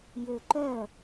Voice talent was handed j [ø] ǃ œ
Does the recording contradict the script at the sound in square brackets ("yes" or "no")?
no